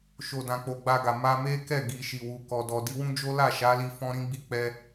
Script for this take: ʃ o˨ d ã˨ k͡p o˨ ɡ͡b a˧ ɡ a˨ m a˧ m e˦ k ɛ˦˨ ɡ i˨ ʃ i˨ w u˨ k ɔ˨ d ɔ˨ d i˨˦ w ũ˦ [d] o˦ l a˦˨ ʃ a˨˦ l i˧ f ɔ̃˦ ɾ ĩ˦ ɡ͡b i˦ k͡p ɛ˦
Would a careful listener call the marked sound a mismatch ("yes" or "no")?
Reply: yes